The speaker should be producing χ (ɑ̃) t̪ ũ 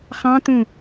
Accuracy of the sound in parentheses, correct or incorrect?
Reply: correct